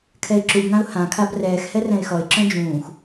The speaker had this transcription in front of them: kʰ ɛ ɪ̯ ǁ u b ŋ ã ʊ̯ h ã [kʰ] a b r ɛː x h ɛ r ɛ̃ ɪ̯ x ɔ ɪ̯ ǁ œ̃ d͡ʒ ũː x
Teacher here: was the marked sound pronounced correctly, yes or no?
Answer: yes